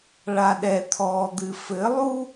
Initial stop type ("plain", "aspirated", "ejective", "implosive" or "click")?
implosive